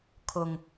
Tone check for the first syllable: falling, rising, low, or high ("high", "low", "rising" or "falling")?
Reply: low